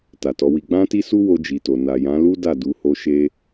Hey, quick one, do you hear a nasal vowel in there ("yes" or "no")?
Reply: yes